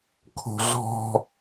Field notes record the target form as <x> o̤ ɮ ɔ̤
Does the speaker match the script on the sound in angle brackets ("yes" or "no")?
no